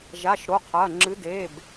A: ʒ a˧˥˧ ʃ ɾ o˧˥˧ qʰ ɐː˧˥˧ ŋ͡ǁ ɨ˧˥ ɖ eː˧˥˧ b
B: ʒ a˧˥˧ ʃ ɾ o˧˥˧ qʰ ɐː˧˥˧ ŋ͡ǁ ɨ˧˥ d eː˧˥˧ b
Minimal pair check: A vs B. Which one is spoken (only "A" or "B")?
B